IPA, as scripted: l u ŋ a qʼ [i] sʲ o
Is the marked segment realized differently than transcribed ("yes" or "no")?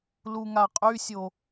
yes